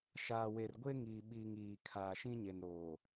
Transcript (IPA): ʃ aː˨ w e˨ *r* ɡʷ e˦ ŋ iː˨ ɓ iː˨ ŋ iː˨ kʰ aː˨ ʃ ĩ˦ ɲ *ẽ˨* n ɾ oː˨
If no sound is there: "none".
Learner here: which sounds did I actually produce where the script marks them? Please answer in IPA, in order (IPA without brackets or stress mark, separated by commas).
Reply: r, e˨